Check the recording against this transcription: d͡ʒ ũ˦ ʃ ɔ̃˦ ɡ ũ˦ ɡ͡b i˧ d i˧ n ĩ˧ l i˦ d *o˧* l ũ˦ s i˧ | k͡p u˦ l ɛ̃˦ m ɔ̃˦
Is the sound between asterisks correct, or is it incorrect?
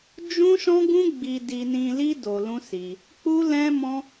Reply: correct